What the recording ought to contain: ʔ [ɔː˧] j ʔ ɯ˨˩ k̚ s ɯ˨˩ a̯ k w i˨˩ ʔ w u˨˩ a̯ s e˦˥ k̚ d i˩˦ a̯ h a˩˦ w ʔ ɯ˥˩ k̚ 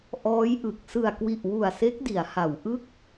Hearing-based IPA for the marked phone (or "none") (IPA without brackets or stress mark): ɔː˦˥